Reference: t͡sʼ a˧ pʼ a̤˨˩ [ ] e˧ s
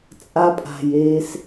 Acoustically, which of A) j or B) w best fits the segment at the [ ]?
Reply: A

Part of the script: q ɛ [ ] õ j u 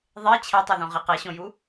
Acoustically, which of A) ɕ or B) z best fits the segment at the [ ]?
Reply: A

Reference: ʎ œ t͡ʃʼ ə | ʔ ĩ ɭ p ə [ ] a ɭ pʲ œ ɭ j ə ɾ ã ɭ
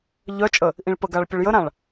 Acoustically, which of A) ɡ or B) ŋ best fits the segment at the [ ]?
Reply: A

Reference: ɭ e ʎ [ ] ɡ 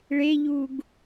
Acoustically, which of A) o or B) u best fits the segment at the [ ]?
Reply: B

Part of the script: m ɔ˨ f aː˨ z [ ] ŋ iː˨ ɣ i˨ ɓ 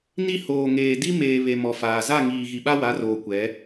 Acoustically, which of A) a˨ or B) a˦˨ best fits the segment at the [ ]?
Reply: B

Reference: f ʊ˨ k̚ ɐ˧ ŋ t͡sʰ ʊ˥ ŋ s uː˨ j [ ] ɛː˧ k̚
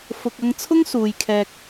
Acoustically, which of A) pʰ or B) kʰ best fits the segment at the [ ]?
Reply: B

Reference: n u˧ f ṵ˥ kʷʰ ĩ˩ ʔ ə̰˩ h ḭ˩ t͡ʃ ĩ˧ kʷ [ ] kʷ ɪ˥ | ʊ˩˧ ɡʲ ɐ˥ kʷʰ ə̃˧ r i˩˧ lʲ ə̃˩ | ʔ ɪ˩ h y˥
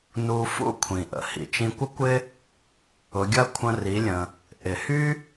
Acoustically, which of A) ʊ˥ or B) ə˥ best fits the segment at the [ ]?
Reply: B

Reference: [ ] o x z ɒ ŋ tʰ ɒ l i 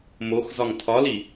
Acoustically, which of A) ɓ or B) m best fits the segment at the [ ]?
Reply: B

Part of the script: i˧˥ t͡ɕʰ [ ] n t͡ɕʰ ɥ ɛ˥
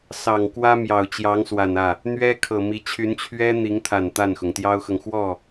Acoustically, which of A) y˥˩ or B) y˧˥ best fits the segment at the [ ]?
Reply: B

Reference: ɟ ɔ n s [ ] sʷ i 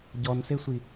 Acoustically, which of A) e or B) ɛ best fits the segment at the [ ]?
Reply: A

